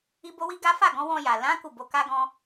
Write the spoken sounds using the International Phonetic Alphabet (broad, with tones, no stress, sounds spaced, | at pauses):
i˦ b o˦ w i˦ ɡ a˦ f a˦˨ ɡ ɔ̃˨˦ w ɔ̃˧ j a˨ l ã˨˦ k u˦˨ b o˨˦ k a˦ ɡ ɔ̃˦